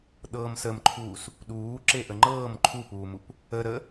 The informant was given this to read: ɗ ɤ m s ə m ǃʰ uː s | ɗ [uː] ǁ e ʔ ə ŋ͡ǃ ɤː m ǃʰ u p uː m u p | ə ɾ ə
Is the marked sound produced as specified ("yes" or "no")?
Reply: yes